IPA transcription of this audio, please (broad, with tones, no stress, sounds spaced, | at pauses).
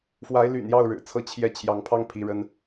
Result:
f w a˧˥ ɪ̯ l y̰˨˩ n j ɑ˥˩ ʊ̯ ɻ ɻ̩˨˩ t͡sʰ ɤ˥ t͡ɕʰ j ɛ˥˩ t͡ɕʰ j ɑ˧˥ ŋ pʰ ɑ˥ ŋ pʰ i˧˥ ɻ ə˥ n